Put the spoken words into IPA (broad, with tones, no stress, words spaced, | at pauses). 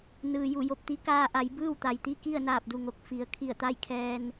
nɯː˩ju˧˩jo˧p̚t̪i˧˥ kaː˧ ʔa˩˧jbɯː˥˨wt̪a˩jt̪i˥˨ ki˥˨ə̯naː˧˩p̚du˩ ŋo˧˩k̚ fi˩˧ə̯ kʰi˧˩ə̯t̪a˥˨j kʰɛː˧n